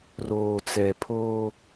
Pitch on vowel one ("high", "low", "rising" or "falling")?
low